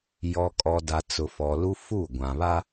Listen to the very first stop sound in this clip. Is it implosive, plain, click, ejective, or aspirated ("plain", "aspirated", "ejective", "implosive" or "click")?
ejective